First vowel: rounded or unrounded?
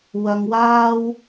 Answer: unrounded